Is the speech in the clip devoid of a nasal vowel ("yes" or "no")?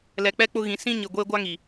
no